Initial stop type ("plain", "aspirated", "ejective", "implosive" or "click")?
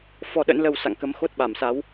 implosive